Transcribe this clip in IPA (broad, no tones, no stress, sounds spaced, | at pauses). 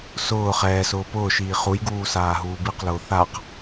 s ʊː χ ɛː s ʊː p ʊː ʃ iː χ u j ɡ uː s aː ɦ uː b i q l ʊː θ a q